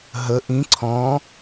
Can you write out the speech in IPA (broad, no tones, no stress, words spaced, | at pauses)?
ɦə ʔĩ ǀʰɔ̃